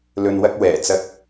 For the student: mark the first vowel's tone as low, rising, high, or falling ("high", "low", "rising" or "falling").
low